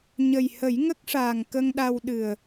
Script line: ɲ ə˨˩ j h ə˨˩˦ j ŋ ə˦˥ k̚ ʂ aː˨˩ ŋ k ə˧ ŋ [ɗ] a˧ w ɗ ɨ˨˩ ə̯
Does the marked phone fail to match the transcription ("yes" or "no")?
no